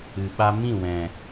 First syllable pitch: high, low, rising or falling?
low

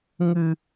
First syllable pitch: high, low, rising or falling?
low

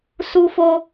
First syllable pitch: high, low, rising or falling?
high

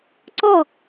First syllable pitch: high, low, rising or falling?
falling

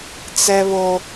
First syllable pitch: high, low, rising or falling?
high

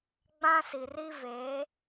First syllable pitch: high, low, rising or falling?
high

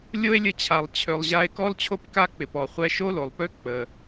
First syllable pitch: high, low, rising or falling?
high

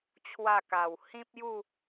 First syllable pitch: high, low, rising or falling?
falling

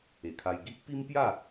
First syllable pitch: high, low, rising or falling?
low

